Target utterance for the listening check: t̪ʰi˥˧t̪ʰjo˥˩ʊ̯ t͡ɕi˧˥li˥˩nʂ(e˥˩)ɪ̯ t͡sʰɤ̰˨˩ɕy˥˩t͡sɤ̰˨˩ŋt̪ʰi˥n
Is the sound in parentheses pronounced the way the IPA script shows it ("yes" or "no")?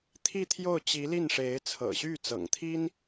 no